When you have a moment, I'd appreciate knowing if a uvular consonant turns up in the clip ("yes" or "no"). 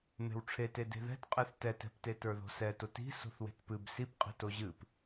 yes